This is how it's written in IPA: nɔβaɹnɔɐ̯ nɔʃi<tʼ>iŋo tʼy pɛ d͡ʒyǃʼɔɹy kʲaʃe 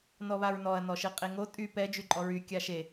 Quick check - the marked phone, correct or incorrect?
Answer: incorrect